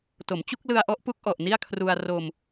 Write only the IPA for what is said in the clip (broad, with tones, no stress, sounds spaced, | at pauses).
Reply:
t o˩˦ m t͡ɕ u˥˩ k̚ l ɯ˧ a̯ ʔ ɔ˦˥ ʔ p u˦˥ k̚ ʔ ɔ˨˩ ʔ n i˥˩ a̯ kʰ r u˧ a̯ r o˧ m